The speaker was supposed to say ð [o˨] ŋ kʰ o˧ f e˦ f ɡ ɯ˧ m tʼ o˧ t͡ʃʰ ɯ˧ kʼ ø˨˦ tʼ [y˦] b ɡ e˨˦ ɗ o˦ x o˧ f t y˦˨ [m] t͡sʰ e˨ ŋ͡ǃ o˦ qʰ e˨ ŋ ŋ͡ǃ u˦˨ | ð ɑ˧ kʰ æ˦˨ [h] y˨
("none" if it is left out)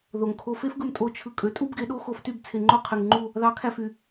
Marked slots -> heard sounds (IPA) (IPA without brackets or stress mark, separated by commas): o˨, u˦, b, f